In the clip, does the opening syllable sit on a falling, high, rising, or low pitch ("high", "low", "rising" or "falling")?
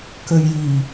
low